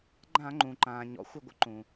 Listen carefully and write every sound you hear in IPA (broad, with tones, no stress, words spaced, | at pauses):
ɡ͡ǃã˧˩˧ŋ͡ǃũ˩ǃãː˩ ɲɔ̰˩xʷɪ˧˩ɡʷə̰˦ ǃũ˩